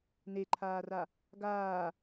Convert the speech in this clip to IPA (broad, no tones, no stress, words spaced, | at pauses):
neǃʰaːra | ɡaː